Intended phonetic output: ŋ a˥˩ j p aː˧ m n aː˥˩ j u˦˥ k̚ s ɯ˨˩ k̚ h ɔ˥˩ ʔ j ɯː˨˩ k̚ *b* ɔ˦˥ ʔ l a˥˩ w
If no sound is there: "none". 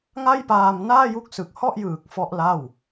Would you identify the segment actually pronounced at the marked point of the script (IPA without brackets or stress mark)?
f